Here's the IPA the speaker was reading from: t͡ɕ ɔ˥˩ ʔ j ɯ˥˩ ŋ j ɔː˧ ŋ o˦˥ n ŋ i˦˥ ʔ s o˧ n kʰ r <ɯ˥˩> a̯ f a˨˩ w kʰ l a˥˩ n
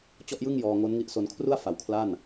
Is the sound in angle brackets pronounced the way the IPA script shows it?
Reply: no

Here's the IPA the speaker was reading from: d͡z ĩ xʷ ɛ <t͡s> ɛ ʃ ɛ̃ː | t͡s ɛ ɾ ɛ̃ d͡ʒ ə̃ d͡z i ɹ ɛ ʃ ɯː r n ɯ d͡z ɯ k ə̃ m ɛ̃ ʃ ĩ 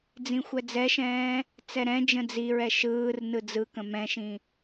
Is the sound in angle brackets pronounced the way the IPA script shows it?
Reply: no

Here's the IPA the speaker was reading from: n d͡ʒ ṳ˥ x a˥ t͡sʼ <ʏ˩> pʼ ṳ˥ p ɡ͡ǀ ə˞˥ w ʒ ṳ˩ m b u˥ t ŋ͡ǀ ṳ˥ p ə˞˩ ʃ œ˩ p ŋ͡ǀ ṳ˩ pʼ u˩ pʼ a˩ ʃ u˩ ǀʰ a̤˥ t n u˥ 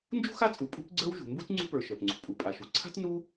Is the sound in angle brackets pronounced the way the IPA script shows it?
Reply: no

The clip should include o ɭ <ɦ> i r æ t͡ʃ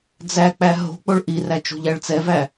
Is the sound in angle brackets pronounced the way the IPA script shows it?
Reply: no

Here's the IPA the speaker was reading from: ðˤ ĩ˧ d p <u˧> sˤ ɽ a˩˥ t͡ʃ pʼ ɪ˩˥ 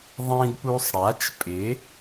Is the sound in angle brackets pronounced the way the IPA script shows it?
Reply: yes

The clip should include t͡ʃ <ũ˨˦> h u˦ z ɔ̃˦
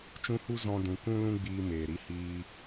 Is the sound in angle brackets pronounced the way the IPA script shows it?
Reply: no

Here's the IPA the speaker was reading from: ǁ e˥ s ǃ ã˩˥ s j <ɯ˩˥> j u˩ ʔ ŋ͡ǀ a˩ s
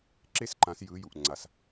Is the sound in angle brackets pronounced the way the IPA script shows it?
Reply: yes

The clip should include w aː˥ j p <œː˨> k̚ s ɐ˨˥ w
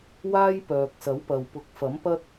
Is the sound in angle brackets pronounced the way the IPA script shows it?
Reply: yes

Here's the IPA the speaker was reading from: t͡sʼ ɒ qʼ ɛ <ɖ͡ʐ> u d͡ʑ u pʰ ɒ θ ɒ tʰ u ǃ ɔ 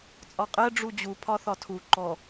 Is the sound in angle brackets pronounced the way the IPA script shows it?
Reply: yes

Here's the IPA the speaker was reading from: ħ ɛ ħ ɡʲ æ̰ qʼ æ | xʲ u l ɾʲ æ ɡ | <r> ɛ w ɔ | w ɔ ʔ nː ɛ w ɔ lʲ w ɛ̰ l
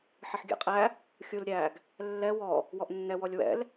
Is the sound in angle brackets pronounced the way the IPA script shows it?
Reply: no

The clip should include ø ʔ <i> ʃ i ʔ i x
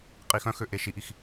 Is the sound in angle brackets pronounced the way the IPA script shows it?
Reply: no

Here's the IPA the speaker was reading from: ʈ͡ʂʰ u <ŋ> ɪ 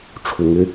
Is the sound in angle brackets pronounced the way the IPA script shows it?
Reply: yes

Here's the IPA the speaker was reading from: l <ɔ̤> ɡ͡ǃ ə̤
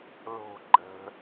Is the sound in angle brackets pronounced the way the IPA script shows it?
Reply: no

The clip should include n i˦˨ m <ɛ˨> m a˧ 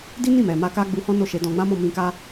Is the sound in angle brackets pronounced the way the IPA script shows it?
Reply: yes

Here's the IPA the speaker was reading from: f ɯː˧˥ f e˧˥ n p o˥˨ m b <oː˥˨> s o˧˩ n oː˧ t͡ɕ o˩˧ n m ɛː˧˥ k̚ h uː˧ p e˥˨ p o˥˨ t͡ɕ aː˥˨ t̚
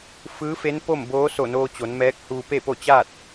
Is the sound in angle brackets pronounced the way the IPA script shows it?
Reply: no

